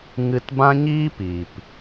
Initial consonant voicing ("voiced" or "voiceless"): voiced